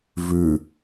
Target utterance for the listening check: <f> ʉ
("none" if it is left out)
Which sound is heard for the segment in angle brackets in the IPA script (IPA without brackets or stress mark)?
v